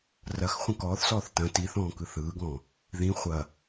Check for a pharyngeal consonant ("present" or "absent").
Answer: absent